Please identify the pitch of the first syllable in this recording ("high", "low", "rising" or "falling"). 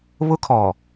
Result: high